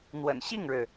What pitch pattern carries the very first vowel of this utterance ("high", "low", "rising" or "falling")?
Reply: low